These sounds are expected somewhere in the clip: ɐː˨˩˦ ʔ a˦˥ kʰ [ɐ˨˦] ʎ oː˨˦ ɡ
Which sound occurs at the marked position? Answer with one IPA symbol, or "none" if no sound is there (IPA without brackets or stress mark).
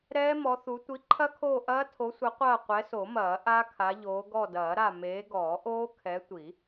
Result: a˨˦